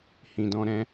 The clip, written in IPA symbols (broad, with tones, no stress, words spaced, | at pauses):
hĩ˨dɔ̃˧ɾɛ̃˦